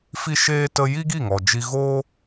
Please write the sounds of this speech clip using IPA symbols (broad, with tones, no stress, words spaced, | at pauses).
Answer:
fi˦ʃeː˦tə˦ ji˦ɡi˦˨ŋɔ˨ d͡ʒi˧ɣoː˦